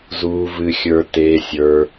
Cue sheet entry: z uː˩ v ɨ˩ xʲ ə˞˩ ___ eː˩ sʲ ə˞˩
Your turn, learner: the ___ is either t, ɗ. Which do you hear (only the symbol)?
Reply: t